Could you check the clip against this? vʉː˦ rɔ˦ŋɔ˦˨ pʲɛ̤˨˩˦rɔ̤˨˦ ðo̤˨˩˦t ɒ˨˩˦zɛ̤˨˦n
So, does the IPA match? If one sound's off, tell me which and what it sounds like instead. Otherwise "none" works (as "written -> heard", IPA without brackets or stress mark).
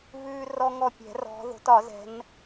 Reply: none